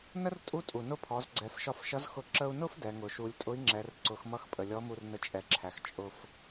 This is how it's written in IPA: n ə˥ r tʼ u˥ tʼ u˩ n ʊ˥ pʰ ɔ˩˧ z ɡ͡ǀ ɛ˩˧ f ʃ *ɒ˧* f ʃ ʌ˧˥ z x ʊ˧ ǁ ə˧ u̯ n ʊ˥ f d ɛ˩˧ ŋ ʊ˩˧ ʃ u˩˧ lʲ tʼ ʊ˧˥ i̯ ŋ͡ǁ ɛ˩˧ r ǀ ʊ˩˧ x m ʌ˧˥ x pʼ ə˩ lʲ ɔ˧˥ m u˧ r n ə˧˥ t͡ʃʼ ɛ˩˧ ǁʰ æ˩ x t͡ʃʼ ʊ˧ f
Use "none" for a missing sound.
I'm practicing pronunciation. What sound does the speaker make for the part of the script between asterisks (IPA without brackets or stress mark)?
ɒ˧